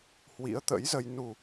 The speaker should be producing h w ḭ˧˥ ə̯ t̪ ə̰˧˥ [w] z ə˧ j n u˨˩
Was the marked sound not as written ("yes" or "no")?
yes